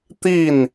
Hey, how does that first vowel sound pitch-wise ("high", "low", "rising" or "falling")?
falling